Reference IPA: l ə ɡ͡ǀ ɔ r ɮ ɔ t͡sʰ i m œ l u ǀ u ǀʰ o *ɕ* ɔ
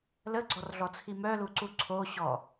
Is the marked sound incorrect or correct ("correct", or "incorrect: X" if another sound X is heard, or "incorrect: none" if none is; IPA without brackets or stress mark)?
correct